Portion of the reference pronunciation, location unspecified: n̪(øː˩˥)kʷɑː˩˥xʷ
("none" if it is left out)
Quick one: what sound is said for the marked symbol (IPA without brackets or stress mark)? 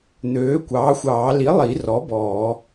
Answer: øː˩˥